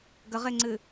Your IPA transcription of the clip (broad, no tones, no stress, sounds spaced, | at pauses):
ɡ ə ʁ e ŋ͡ǀ ɨ